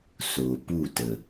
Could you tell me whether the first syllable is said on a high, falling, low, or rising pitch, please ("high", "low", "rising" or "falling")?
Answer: low